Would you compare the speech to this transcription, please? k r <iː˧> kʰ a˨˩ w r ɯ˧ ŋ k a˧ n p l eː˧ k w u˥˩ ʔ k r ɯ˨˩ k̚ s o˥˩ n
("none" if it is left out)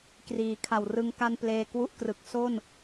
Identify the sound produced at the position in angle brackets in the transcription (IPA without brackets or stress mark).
iː˩˦